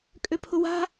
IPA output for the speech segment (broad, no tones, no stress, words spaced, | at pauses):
kʼøpʰʊwa̤